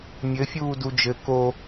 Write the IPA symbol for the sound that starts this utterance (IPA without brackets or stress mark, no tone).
mʲ